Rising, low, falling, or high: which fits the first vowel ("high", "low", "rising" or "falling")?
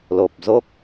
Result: low